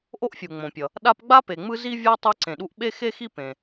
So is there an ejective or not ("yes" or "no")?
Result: no